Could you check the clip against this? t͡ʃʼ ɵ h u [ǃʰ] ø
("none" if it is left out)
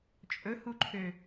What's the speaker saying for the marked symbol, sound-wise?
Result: ǃʰ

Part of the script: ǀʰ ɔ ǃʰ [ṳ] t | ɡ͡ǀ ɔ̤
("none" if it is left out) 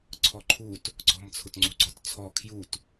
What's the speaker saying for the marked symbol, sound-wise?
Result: u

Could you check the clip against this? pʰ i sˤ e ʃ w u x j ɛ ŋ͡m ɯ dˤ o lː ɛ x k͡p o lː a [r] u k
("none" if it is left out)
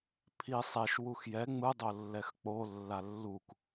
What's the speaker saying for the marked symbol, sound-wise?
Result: lː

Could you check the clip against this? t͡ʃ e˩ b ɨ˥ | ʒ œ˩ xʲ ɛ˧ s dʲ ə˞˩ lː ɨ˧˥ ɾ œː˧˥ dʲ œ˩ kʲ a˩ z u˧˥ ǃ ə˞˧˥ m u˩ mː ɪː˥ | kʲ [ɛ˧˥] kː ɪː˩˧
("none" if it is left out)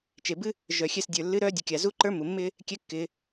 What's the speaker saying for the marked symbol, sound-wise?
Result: ɛ˧˥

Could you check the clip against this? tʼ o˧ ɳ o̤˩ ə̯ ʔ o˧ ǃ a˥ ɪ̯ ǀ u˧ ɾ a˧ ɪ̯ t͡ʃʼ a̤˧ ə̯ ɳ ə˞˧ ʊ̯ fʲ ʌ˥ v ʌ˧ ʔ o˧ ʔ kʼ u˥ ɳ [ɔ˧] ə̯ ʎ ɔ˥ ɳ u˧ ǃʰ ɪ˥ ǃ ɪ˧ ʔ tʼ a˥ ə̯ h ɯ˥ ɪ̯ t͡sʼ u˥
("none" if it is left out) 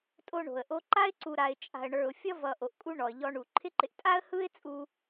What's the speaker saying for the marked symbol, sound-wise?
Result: ɔ˧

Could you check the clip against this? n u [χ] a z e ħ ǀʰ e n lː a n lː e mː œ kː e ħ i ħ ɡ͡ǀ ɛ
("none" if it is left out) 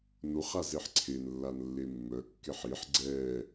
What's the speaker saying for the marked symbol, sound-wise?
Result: χ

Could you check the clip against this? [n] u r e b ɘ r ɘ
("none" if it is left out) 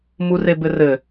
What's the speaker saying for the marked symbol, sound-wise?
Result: m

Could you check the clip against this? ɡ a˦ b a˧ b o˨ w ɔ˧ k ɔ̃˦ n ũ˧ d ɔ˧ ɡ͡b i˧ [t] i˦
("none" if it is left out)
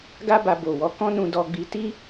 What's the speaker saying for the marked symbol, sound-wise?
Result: t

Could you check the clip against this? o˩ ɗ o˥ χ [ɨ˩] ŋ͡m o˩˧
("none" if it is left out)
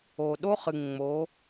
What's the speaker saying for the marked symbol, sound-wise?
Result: ɨ˩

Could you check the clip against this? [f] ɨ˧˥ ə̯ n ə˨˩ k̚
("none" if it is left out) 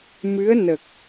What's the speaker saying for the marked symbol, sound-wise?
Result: m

